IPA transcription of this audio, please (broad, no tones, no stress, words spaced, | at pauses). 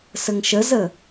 səŋʃəzə